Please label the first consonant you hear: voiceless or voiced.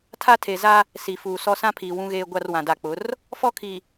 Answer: voiceless